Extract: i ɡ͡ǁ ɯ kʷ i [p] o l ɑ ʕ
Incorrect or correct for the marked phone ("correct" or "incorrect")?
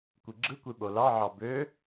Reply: incorrect